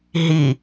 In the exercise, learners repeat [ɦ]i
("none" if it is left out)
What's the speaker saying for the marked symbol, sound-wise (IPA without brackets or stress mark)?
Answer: ɦ